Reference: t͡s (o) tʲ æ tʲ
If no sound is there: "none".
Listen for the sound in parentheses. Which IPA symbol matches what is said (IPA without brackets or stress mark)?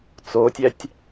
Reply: o